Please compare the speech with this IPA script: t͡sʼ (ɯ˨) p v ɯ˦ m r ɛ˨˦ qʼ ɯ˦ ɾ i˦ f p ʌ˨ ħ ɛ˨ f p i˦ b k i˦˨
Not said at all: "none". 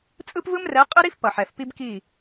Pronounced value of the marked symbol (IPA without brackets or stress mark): ɯ˦